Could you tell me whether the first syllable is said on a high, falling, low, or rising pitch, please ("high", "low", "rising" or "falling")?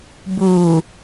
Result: low